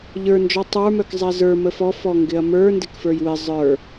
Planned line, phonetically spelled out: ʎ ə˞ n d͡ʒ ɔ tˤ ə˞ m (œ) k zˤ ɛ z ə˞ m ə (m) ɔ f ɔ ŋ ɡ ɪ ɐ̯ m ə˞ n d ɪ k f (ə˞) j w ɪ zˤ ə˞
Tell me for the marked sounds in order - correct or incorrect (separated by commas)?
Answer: correct, incorrect, correct